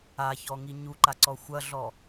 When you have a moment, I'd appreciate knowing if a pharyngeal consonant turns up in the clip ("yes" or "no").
no